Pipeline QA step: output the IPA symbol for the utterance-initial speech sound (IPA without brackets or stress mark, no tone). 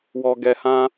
w